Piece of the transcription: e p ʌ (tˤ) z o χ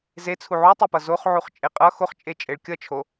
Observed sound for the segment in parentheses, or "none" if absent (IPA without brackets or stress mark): none